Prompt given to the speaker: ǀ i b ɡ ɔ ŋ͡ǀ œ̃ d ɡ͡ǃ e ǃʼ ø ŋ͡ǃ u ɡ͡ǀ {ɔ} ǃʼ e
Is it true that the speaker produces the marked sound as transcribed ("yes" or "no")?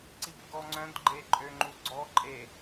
yes